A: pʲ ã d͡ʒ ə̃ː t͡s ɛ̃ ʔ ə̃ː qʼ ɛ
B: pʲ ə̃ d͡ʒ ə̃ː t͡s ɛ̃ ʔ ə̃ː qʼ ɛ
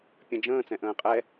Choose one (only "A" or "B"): B